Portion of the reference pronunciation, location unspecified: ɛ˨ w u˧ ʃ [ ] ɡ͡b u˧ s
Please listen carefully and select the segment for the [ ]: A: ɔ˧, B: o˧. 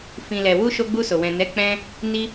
B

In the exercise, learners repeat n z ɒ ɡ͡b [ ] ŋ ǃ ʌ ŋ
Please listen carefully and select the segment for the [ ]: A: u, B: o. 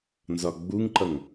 A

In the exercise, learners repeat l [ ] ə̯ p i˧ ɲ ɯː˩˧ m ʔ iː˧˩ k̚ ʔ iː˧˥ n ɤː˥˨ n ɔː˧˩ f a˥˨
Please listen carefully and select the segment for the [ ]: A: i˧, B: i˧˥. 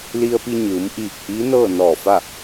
A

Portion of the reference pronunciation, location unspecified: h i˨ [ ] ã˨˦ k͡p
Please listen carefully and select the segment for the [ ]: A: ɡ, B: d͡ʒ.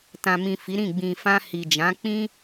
B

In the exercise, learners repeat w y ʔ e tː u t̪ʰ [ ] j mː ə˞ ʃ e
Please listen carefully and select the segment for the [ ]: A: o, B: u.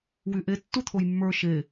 A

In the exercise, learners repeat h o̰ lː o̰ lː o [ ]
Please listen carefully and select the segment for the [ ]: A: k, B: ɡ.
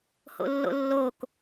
A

